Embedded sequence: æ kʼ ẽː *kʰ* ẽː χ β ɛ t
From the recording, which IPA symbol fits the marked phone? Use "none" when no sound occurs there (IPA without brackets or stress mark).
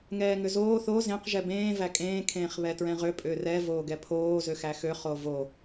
kʰ